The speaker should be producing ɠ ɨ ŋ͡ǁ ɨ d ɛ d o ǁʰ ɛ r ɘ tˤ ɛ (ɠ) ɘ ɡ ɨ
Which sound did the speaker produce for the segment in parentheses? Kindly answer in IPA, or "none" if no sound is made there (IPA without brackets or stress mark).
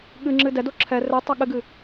ɠ